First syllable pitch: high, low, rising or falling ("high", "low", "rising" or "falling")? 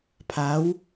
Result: rising